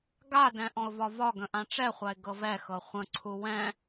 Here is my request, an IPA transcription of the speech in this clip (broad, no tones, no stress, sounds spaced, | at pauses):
ɡ a d ɛ̃ ʔ ɔ̃ ʊ̯ v ɒ v ɒ ɡ ə̃ ʔ ã ʈ͡ʂ ɛ χʷ a ɪ̯ ɡ ɤ v ɛ x ɤ χʷ ə̃ ǀʰ u w ɛ̃